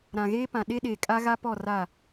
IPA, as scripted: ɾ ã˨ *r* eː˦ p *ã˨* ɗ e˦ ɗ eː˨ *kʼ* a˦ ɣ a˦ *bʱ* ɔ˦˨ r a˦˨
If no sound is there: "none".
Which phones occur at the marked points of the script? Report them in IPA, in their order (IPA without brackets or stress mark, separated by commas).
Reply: ɣ, ã˨, kʼ, p